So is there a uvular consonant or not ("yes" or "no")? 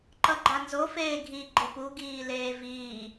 no